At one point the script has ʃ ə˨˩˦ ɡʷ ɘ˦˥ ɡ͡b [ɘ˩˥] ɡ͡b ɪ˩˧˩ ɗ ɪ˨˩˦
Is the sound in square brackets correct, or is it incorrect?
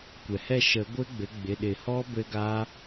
correct